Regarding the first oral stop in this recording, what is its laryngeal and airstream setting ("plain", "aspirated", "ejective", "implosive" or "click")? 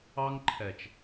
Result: click